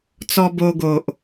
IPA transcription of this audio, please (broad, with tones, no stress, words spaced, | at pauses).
t͡sɔ˧bo˧ɡo˨ʔ